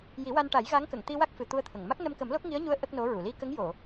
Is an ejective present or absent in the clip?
absent